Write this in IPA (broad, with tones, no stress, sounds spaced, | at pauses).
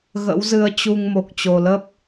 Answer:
ɣ ə̰˧˥ w z ɨ˧ ə̯ t͡ɕ u˧ ŋ m o˨˩ k̚ t͡ɕ o˨˩ l ə˦˥ p̚